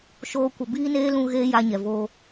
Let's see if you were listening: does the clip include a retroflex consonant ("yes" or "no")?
no